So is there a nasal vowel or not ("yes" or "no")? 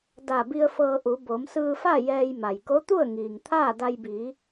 no